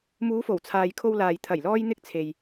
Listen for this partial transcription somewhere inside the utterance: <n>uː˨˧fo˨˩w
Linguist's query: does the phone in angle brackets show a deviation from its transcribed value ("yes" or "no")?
yes